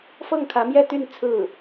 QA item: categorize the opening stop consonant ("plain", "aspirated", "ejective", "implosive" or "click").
aspirated